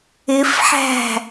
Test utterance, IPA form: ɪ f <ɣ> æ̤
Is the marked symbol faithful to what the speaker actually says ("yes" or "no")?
no